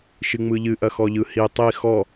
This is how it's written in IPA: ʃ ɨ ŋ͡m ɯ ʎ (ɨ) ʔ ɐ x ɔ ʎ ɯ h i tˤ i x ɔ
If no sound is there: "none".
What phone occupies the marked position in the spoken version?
ɨ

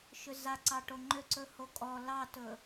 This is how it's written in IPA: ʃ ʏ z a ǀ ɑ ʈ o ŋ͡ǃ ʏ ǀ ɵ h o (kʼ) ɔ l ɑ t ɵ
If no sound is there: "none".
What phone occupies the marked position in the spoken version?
kʼ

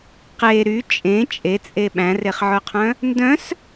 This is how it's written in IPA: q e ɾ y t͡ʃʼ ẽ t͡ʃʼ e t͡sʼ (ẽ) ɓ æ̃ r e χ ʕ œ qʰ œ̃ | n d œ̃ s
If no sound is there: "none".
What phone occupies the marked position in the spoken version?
e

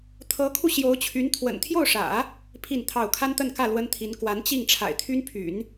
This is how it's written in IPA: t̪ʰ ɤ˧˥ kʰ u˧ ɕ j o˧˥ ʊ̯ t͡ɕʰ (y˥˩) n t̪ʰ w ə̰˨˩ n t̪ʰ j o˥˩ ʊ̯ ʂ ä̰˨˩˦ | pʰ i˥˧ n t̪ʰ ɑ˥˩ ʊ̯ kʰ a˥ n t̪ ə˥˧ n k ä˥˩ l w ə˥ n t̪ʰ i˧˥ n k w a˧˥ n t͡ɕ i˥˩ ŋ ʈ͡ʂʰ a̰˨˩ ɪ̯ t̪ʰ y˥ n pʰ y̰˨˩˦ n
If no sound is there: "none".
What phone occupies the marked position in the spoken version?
y˧˥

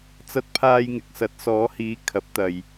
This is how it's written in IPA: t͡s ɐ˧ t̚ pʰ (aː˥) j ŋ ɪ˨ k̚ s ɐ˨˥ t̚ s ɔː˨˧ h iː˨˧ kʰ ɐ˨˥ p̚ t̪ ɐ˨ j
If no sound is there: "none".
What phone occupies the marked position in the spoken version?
aː˧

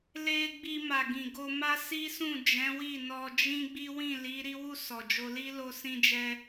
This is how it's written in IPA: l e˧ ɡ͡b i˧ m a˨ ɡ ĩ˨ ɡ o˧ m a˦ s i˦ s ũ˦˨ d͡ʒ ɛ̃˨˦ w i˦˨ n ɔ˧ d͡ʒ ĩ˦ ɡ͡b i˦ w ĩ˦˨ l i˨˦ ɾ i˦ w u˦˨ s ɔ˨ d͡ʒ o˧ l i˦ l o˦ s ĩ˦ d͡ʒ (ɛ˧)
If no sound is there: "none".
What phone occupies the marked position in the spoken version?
ɛ˧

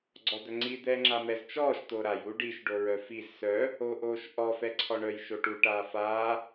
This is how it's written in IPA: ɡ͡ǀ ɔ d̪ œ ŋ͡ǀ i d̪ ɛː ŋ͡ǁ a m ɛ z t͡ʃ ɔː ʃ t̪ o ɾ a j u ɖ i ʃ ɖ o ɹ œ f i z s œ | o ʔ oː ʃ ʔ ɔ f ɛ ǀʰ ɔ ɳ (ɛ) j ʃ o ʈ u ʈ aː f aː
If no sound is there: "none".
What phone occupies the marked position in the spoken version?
œ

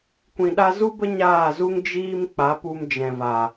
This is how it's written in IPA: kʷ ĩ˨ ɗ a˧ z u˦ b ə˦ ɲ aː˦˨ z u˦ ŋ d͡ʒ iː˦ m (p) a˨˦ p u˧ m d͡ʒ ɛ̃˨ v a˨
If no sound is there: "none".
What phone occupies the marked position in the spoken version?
k͡p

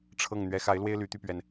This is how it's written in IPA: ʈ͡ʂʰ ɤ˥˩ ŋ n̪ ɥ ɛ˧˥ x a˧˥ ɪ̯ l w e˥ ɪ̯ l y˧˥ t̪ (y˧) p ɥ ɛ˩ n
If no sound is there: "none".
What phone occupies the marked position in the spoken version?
y˧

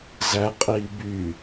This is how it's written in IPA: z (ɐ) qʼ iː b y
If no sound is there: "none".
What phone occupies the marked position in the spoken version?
æ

